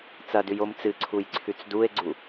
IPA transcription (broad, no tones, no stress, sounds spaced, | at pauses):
t͡s ɐ d ʉ j o m t͡s ɨ ǀʰ u j ǀʰ ʉ t͡s d u e̯ ɡ͡ǀ u